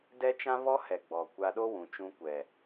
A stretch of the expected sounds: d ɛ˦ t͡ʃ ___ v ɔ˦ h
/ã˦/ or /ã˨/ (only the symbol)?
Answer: ã˦